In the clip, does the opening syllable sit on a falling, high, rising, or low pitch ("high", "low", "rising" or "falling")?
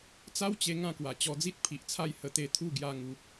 high